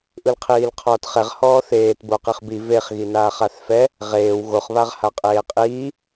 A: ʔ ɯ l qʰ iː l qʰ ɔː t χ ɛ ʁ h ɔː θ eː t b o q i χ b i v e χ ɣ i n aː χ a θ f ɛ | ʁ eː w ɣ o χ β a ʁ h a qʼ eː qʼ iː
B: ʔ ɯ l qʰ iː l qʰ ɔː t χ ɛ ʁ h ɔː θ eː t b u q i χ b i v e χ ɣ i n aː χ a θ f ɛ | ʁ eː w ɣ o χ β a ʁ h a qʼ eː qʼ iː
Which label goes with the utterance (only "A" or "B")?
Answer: A